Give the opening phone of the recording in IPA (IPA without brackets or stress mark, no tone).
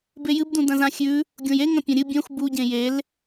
b